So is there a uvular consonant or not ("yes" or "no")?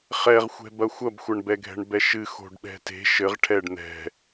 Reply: yes